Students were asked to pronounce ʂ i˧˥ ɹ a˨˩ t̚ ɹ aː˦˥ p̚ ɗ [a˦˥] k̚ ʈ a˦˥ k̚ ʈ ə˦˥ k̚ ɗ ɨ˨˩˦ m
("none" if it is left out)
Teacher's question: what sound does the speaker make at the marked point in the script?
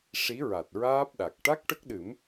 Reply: a˨˩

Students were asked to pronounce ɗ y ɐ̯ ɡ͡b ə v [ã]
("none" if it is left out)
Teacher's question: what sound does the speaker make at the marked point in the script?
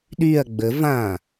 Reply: ã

